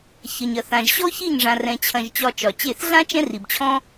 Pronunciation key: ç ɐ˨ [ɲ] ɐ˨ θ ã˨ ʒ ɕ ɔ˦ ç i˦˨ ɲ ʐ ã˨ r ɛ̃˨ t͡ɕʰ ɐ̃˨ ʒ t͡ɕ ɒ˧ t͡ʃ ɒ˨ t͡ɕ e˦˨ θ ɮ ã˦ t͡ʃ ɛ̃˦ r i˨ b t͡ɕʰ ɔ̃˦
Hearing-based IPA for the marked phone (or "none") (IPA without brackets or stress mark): ɲ